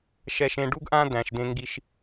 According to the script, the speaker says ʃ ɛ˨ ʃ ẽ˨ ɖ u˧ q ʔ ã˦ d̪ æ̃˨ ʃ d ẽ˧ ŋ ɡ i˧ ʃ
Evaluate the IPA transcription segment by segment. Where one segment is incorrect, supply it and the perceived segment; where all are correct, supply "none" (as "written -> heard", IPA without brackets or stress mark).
q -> ɡ